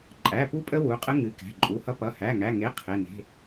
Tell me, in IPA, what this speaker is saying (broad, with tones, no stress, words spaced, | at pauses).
ǃʼæ˩˧˩pu˦pʼə˦ wu˩˧˩qʼə˦ ŋɨ˩˧˩kæ̤˩˧˩ǃʼu˩˧˩hʌ˦ pʌ˩˧˩hæ˩˧˩ŋæ˩˧˩ ŋe˩˧˩ qʰe˩˧˩ne̤˩˧˩